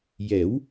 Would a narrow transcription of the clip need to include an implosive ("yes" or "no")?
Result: no